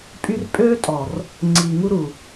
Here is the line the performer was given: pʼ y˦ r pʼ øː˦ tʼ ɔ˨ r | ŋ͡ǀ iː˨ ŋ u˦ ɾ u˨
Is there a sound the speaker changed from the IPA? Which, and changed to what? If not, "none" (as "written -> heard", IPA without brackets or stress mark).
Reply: none